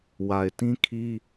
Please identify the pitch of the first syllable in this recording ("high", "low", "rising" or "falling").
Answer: low